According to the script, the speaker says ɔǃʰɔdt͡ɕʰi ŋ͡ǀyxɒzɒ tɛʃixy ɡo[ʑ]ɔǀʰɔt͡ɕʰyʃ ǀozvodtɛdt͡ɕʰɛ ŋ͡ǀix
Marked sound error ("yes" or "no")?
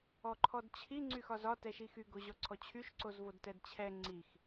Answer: no